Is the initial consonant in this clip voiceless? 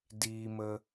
no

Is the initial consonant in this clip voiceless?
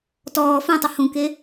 yes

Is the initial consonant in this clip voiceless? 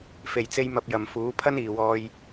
yes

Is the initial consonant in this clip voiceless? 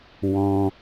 no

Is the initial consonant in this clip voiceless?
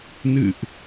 no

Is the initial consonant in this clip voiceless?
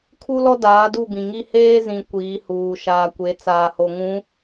yes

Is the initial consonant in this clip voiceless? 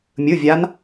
no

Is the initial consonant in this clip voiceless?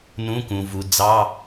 no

